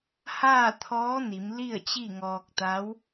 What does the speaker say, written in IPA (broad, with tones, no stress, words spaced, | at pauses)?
haː˥˨t̪ʰɔː˧˥ni˩˧m li˥˨ə̯t͡ɕi˥˨ŋɔː˧k̚t̪a˧˥w